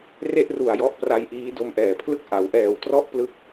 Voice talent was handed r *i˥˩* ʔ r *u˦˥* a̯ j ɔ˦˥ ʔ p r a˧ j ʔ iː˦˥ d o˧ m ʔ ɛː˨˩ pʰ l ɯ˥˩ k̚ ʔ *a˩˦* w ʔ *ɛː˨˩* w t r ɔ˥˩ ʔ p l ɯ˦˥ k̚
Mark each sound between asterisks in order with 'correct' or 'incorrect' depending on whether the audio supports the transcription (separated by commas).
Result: incorrect, incorrect, correct, correct